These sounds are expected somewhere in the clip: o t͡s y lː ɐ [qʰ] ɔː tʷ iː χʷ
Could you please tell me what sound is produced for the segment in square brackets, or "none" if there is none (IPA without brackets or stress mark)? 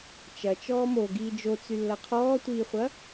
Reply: qʰ